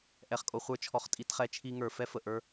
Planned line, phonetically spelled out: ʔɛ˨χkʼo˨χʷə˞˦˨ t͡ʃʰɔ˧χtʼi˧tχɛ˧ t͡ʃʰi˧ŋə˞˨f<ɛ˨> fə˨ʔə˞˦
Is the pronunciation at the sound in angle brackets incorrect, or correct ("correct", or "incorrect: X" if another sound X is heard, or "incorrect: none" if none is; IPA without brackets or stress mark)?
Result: incorrect: ɛ˦